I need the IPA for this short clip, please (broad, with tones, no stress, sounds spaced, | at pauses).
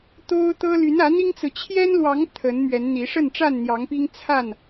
t̪ o˦ ʊ̯ t̪ ɤ˦ l y˨˦ n ä˨˦ n̪ i˦ ŋ t͡s ɹ̩˨ t͡ɕʰ j ɛ˦ n l w ɑ˨˦ ŋ t̪ʰ ə˨˦ n m ɥ ɛ˨˦ n n̪ i˨˦ ʂ ə˥˨ n ʈ͡ʂ a˥˨ n n̪ j ɑ˨˦ ŋ p i˦ ŋ t͡sʰ a˥˨ n